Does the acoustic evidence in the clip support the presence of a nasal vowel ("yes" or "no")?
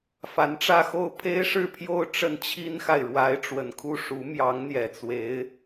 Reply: no